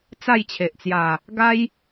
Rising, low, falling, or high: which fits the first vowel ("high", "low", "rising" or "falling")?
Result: falling